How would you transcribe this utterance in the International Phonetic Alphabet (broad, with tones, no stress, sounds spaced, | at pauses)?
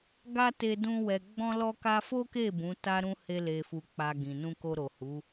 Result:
ɡ a˦ t e˧ d ũ˧ w ɛ˨ ɡ͡b ɔ̃˧ l ɔ˧ k a˧ f o˦ k e˦˨ b ũ˨˦ t a˦ ɾ ũ˦ h e˧ l e˨ f u˨ k͡p a˨ ɡ ĩ˨ n ũ˧ k o˧ ɾ o˨ h u˨˦